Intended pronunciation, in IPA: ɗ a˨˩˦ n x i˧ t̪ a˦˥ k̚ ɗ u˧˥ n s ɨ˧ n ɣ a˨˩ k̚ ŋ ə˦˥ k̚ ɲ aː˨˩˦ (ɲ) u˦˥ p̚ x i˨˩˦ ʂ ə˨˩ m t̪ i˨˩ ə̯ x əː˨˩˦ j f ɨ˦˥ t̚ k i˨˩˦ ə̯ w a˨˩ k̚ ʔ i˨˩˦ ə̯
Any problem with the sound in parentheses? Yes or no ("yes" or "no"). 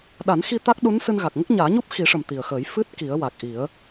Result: no